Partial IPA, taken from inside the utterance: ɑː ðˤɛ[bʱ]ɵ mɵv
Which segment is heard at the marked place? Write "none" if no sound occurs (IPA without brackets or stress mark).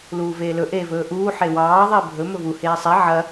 bʱ